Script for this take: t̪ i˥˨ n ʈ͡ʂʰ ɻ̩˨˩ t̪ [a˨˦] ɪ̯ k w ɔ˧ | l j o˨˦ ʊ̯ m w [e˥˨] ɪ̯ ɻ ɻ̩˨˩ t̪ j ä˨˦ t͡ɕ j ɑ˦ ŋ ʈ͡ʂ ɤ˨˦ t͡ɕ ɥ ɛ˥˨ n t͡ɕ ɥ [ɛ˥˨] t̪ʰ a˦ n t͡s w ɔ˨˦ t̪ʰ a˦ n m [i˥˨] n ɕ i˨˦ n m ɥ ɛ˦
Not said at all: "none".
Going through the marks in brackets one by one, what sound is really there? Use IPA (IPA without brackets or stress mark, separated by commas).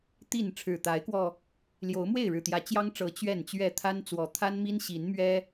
a˨˦, e˥˨, ɛ˥˨, i˦